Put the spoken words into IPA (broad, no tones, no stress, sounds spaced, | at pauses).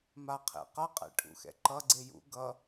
m a qʰ ḛ q ʌ qʼ ɛ̰ ʈʰ ṵ x ɛ̰ ǃ ʌ ɡ͡ǀ e j ṵ ɡ ʌ